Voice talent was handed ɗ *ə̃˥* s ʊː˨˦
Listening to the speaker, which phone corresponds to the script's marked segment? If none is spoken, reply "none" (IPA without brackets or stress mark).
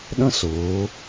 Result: ə̃˥